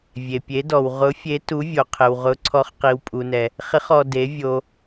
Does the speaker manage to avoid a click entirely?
no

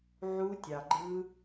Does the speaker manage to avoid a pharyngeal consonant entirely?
no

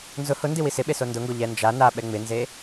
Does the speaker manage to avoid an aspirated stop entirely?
yes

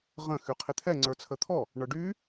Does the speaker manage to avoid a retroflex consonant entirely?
no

